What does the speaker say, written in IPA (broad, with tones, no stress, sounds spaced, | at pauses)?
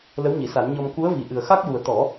l ə˧˥ w ɲ i˨˩˨ s a˨˩˦ n ɲ ɔ˧ m k u˧˥ ə̯ v i˨˩ ʔ ɨ˨˩ ə̯ x a˦˥ k̚ j u˨˩ ə̯ t̪ ɔ˨˩˦